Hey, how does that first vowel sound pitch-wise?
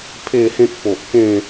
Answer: falling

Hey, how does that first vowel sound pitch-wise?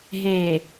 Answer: low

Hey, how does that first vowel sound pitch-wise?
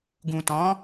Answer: low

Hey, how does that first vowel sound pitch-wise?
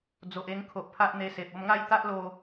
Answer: low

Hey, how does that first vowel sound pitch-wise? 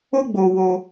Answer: high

